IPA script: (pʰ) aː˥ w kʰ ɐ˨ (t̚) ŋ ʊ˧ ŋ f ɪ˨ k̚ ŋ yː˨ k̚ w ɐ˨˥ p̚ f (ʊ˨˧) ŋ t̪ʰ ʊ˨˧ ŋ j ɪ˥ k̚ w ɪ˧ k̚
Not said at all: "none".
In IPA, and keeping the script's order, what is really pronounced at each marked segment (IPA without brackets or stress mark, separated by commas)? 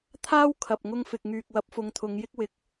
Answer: t̪ʰ, p̚, ʊ˨˧